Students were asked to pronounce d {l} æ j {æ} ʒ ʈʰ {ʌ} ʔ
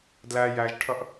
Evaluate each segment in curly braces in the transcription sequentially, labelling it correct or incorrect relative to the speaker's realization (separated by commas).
correct, correct, correct